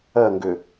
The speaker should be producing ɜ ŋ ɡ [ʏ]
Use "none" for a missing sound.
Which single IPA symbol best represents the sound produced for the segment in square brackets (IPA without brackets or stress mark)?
ʏ